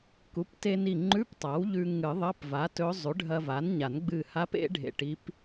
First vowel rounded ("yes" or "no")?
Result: yes